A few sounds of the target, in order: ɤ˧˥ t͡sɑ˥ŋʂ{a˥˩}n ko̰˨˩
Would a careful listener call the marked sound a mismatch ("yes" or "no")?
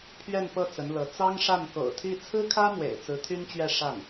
no